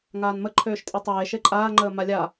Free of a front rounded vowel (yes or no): no